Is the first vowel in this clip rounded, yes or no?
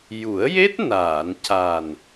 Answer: yes